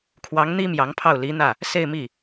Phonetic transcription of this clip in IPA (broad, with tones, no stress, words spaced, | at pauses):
kʰwɑ˧˥ŋn̪i˥ mjɑ˧˥ŋpʰɑ˥˩ʊ̯li˧˥n̪ä˥˩ | se˥˧ɪ̯mi˥˩